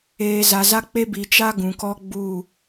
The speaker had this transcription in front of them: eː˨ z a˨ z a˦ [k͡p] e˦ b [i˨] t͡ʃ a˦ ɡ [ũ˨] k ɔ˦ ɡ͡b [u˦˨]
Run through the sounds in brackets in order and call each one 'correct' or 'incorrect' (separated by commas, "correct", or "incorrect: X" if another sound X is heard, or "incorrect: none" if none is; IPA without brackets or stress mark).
correct, correct, correct, correct